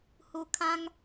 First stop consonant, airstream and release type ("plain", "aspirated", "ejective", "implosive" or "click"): aspirated